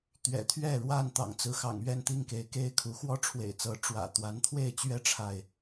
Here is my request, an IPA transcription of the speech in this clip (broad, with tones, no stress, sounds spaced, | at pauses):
t̪ ɥ ɛ̰˨˩ t̪ʰ ɥ ɛ˥˨ ɻ w a˥˨ n t̪ ɑ̰˨˩ ŋ t͡s ɹ̩˨˦ x ɑ̰˨˩ ŋ ɥ ɛ˥˨ n t̪ i˥˨ ŋ k e˨˦ ɪ̯ k e˥˨ ɪ̯ kʰ u˨˦ x w ɔ˦ ʈ͡ʂʰ w ḛ˨˩ ɪ̯ t͡s ɤ˨˦ ʈ͡ʂ w ä̰˨˩ t̪ w a˨˦ n t̪ʰ w e˥˨ ɪ̯ t͡ɕ ɥ ɛ˦ ʈ͡ʂʰ a˥˨ ɪ̯